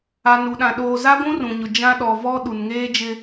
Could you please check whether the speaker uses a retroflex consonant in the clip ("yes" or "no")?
no